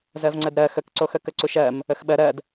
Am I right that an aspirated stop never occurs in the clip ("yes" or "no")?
yes